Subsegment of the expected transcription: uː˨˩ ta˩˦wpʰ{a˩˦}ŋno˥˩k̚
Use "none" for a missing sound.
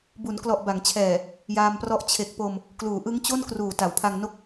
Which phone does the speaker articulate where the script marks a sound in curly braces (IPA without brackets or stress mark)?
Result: a˧